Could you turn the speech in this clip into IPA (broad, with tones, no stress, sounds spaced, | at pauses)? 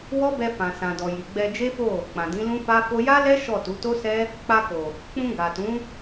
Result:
w ɔ˦ b ɛ˧ f ã˨ s ã˨ d ɔ˨ j i˨ ɡ͡b ɛ˧ d͡ʒ e˦ f o˦˨ | k͡p ã˨ d ĩ˨˦ l ũ˦ f a˦ f o˦ j a˦ l ɛ˦ ʃ ɔ˦˨ t u˨˦ t o˦ s ɛ˦ | k͡p a˧ k o˨ | k͡p ũ˧ ɡ a˨ t ũ˨˦